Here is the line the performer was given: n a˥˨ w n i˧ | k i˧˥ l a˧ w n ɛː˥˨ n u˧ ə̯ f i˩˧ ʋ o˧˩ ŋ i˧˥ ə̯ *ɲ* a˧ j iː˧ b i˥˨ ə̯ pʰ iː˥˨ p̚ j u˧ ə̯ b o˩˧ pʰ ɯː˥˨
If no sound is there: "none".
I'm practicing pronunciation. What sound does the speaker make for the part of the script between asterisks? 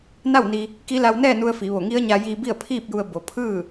ɲ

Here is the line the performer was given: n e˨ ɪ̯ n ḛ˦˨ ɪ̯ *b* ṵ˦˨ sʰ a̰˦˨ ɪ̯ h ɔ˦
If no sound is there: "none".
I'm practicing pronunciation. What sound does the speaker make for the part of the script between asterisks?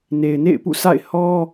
p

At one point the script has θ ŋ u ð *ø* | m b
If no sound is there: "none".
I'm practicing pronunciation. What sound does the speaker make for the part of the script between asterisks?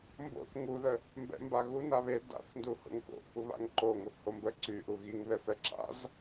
ə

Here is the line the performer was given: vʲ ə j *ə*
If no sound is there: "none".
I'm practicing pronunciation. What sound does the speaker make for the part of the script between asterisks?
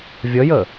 ə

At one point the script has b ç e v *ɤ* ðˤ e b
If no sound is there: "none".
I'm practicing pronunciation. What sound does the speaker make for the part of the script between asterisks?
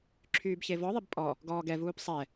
ɔ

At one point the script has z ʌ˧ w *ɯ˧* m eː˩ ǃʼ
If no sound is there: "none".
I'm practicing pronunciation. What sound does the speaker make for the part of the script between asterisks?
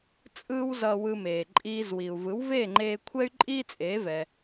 ɯ˧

